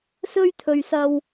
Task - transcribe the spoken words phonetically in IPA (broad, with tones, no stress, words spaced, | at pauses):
sɵ˥ɥt̪ʰɵ˨ɥsɐ˧w